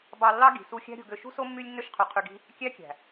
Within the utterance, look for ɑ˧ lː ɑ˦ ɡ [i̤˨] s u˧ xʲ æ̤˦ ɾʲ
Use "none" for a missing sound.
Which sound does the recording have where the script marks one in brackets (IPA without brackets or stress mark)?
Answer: i̤˨